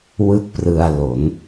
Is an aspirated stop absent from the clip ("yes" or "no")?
yes